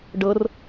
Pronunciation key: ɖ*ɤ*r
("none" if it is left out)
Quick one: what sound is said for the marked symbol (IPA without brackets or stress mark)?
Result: ɤ